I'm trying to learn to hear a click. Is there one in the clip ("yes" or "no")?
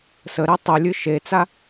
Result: no